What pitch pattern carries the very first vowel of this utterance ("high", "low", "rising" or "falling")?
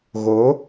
rising